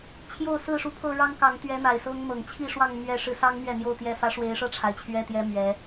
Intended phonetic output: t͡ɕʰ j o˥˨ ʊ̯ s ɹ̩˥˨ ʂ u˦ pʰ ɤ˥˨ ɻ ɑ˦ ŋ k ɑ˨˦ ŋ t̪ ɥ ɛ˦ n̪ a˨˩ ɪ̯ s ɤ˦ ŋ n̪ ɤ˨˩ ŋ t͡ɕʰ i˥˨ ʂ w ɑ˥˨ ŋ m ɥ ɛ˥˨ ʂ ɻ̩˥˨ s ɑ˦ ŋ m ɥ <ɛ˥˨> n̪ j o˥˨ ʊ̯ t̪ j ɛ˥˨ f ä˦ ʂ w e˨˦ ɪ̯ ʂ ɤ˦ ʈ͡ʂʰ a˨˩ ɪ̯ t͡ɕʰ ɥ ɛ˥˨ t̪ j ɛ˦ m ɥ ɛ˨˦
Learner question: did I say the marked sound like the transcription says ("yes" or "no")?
yes